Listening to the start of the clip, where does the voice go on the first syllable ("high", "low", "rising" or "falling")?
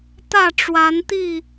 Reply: falling